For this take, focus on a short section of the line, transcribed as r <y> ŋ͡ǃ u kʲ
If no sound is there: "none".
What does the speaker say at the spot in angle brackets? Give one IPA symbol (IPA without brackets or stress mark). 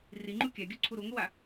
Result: i